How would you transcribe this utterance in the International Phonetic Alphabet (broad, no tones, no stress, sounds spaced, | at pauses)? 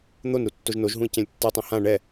n̪ o n ɾ u tː o ʒ n o ʒ ɦ ũ i̯ c ɛ̃ lʲ tː a tˤ õ h ã ɳ ɛ